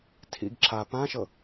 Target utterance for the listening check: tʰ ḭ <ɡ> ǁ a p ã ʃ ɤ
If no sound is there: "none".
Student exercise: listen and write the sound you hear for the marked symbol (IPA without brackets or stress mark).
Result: ɡ